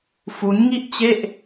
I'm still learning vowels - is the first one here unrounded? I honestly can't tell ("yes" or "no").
no